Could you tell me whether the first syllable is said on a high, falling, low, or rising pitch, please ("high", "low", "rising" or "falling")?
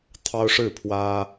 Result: high